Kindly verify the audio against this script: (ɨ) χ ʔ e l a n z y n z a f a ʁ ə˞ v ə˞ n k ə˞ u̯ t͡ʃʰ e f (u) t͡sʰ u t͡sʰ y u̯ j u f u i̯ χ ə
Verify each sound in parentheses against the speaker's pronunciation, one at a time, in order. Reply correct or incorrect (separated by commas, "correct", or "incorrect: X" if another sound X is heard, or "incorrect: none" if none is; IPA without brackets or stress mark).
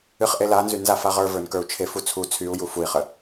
correct, correct